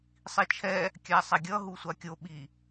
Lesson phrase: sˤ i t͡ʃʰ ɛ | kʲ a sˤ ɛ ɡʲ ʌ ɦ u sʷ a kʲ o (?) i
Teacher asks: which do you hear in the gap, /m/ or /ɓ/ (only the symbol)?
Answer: ɓ